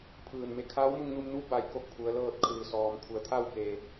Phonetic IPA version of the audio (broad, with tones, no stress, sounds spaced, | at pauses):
pʰ ɯː˧˩ n m e˧ kʰ a˧˥ w m u˧ ŋ n u˧ m n u˧˥ b a˩ j k o˥˨ k̚ pʰ u˩˧ ə̯ l ɤː˥˨ t̚ kʰ ɯː˩ s ɔː˩ m kʰ u˩˧ ə̯ t̪ʰ a˥˨ w k eː˩